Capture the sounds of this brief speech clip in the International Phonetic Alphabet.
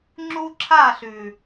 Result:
ŋ͡ǁ u˦ ǁʰ a˦˨ ɬ ʉ˨

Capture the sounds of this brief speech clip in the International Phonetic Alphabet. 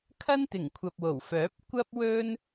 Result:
kʰ ɐ˥ n t̪ ɪ˨˩ ŋ kʷʰ ɐ˨ p̚ w o˨˩ w f œː˨˥ p̚ kʷ ɐ˥ p̚ w ɵ˥ n

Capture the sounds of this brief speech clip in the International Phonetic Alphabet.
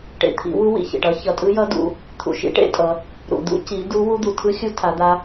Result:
ʈ ḛ˨ t̪ʰ ḭ˨˦ w u˦˥ w ḭ˨˦ ç ḛ˨ ʈ ʌ˦˥ ç ʌ˨ tʼ ɯ˦˥ j ʌ˦˥ d ṵ˨˦ | t̪ʰ ṵ˨ ʃ ḭ˨˦ ʈ ḛ˦˥ tʼ ʌ˨˦ | ɾ ṵ˨ d̪ ṵ˦˥ c i˨˦ d u˦˥ w u˦˥ d̪ u˨ tʰ ɯ˦˥ xʲ u˦˥ tʰ a˨˦ d̪ a˦˥

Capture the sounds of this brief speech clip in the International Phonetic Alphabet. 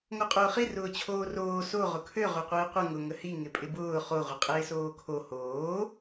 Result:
ŋ o qʼ ʊː χ i r ʊː t͡ɕʰ oː r oː s o ʁ ʊ kʰ ø ʁ ø qʷ ɪː qʷ ə ŋ ʊ ŋ ə h i ŋ ɪ pʼ ɪ b ʊː χ o ʁʷ ə qʼ ɪː s oː kʰ o h oː

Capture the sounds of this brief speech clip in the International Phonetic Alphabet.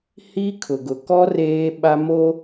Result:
h i˦ kʰ ʊ˨ ɡ ʊ˨ k ɔ˦ r eː˦ ɓ a˦ m o˦

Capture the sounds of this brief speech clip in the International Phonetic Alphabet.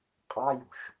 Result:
qʼ ɑ j ṳ ʃ

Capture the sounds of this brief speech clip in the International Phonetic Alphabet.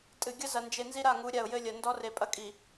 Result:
tʼ ɨ˨ ɡʲ ɐ˦ z ɐ˨ n d͡ʒ e˨ n z i˦ ɾ a˦˨ ŋ u˨˦ ɾʲ a˦˨ ʊ̯ j ɘ˦ lʲ ɐ˨ n d ɔ˦ r e˨ pʼ ɐ˦ kʼ i˨

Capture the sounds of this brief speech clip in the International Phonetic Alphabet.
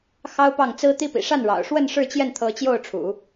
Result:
x ɑ˥ ʊ̯ p ɑ˥˩ ŋ t͡s ɹ̩˥ t̪ i˥ p ḭ˨˩ ʂ a˥˩ n ɻ ɑ̰˨˩ ʊ̯ ʂ w ə˥˧ n ʂ ɻ̩˥˧ t͡ɕ j ɛ˥˩ n t̪ʰ ɤ˧˥ t͡ɕ j o˥˩ ʊ̯ ʈ͡ʂʰ ṵ˨˩˦

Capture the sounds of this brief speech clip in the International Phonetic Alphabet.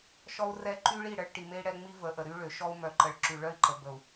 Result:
ʃ ɔ˦ u̯ r ɛ˦˨ ǃ y˦ ɭ i˦˨ ɽ ə˦ ɭ ʈ i˨ m e˦ i̯ ɽ ɛ˦ ŋ͡m i˦ v ə˨ ʔ ə˨ ɾ y˦ ɭ ø˨ ʃ ɔ˦ u̯ m œ˨ ǃ ə˨ ɭ ǁ y˨ ɭ œ˦ i̯ ǃ ə˨ b ə˨ u̯

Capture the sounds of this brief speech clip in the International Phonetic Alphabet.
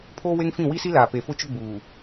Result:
pʰ oː˦ w e˦ ŋ f ĩ˦˨ w i˦ s i˦ l aː˨ p e˨ f ʊ˦ t͡ʃ ʊ˦ ɡ͡b uː˨

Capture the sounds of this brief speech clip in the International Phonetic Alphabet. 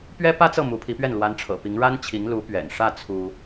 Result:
p ɥ ɛ˥ p ä˥ t͡s ɤ˥˩ m u˧˥ pʰ i˧˥ p ɥ ɛ˥˩ n l w a˧˥ n ʈ͡ʂʰ ɤ̰˨˩ p i˧˥ ŋ ɻ a˥ n t͡ɕʰ i˧˥ ŋ l u˧˥ p ɥ ɛ̰˨˩ n ʂ ä˥˩ t͡sʰ u˥

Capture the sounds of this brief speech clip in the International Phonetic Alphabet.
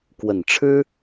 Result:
k w ə˨˩ n ʈ͡ʂʰ ɻ̩˥

